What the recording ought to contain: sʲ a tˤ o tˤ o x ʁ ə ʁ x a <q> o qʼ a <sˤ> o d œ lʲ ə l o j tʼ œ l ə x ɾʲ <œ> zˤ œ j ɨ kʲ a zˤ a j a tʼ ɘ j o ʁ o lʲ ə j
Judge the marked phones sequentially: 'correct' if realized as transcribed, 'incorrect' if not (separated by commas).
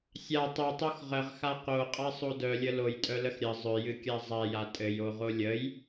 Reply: correct, correct, incorrect